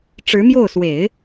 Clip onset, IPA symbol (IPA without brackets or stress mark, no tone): ʈ͡ʂ